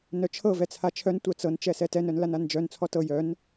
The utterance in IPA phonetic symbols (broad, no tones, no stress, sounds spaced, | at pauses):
n œ t͡ʃʰ ɤ v ɛ t͡sʰ a t͡ʃʰ œ n tʷ œ t͡s ɤ n t͡ʃ ɛ s ɛ t ɛ n œ n l a n a n d͡ʒ œ n t͡sʰ ɔ t ɤ j œ n